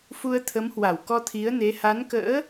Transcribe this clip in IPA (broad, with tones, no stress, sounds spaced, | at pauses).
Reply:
f u˧ ə̯ t̪ʰ ə˨˦ m h w a˧˩ w k ɔ˧ t̪ʰ i˨˦ ə̯ n e˨˦ h a˨˦ n k ə̰ː˧˥